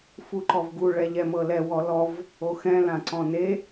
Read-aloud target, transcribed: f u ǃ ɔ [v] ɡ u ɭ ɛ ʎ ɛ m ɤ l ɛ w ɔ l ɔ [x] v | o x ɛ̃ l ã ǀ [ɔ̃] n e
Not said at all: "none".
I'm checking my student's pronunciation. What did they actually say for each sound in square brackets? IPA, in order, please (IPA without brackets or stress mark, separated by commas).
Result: v, none, ɔ̃